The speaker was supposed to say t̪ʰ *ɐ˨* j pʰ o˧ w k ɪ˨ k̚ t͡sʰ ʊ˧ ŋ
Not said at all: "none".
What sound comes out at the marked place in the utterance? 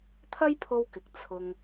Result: ɐ˥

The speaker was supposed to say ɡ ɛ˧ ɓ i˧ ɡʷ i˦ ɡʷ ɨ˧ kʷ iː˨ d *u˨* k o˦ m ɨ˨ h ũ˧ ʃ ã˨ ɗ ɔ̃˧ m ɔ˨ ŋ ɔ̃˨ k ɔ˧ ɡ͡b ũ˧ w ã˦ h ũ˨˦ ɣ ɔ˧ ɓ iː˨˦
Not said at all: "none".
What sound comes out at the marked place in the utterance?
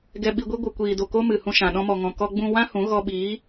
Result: o˨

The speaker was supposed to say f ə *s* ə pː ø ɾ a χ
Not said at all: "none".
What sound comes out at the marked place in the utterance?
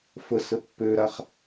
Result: s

